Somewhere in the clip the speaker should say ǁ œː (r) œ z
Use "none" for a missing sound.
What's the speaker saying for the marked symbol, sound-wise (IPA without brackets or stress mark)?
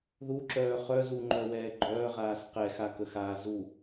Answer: χ